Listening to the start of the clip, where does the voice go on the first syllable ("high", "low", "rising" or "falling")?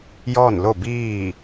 falling